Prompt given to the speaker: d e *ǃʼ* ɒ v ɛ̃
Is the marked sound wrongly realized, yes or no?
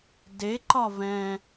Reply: yes